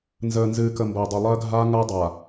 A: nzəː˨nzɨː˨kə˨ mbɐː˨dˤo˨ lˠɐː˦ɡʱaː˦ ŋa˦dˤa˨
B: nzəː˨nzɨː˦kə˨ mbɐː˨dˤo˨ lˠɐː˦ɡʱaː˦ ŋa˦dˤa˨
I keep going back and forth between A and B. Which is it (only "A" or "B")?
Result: A